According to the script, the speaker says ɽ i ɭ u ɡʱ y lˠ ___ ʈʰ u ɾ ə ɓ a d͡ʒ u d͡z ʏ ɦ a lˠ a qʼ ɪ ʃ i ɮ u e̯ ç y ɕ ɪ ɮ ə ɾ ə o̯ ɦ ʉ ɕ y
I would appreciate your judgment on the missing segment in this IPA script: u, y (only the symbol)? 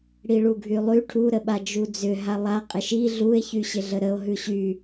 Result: y